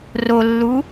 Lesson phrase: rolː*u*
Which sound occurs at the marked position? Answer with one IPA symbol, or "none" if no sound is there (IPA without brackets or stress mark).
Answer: u